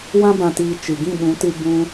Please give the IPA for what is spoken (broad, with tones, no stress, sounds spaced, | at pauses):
w ã˧ b ã˨ t iː˨ t͡ʃ ɨ˨ ɡ ĩ˦˨ ɓ ũ˨˦ t ɨ˧ b ũ˧